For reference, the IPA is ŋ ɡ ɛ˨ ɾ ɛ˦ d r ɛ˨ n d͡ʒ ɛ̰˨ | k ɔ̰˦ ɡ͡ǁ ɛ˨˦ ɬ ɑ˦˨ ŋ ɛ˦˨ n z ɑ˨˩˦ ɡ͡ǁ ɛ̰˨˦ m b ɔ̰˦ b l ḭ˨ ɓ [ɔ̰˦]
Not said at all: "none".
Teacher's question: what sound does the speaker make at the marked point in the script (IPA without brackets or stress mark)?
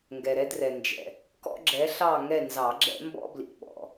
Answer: ɔ̰˨